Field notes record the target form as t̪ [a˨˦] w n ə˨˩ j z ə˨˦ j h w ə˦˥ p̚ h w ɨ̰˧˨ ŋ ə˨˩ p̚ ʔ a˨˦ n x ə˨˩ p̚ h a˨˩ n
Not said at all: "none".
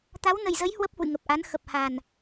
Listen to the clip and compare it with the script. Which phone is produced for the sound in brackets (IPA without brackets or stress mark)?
a˨˦